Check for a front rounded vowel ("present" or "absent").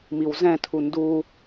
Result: absent